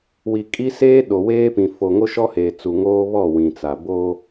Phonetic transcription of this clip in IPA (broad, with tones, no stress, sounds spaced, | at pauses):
w i˨ kʼ i˦ s eː˦ ɗ o˨ w eː˦ p ĩ˨ f o˨ ŋ o˦ ʃ ɔ˦ h eː˨ t͡s u˨ ŋ oː˦ β ɔ˦˨ w ĩ˨ t͡s a˨ b o˦